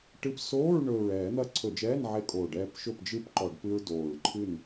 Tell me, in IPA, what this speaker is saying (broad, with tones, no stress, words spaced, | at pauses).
ʈɨ˧p soː˧˥˧ɹ ɳɵː˨˩ɹɛː˧˩˧n̪ɐ˧ ǀʰɵ˧˩˧d͡ʒɛː˧˥˧nʕe˧kʼoː˨˩ ɖɛː˧pʃɵ˥˨p d͡ʒɨ˥˨pǃɔ˧˩˧ɖ pɨ˧ɹ doː˨˩ɹǃʰɨ˥˨n